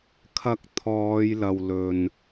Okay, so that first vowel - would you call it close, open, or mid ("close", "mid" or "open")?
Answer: open